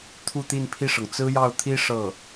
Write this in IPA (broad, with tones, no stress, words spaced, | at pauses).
t̪ʰu˥˧t̪i˥˧npʰi˥˩ʂɤ˩ŋ t͡sɹ̩˥jɑ˥˩ʊ̯t̪ʰi˥ ʂɤ˥˩